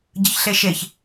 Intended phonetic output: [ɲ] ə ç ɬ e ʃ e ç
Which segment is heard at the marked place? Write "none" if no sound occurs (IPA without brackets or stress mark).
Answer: ɟ